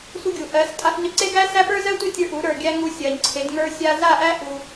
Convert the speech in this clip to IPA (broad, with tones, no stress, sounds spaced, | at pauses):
sʷ ʌ˧ ɡʲ u˨ ʔ ɜ˨˦ s tʼ a˧ f ɲ ʌ˧ ǀ e˦ ɡ æ˦ s æ˦ p ə˞˦ z ɜ˦ tʷ ɛ˦ tʲ ə˞˧ ʔ u˨˦ ɾ ə˞˨ ɡʲ æ˦ ŋ u˧ sʲ ɜ˨ ɲ ǀʰ e˨˦ d ŋ ə˞˧ sʲ a˧ z a˦˨ ʔ æ˦ ʔ u˧